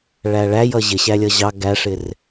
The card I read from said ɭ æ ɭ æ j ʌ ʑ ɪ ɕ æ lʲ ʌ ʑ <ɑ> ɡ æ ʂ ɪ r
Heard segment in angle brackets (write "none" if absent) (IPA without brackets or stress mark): ɑ